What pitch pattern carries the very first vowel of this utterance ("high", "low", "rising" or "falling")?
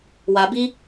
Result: low